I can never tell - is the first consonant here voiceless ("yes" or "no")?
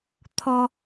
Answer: yes